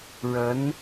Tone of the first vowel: rising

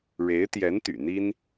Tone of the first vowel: rising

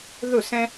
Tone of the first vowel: falling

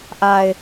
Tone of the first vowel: low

